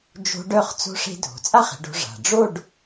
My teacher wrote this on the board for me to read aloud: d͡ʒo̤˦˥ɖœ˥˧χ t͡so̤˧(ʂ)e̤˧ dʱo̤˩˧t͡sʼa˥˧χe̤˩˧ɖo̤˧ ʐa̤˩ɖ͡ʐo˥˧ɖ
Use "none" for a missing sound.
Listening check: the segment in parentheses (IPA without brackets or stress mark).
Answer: ʂ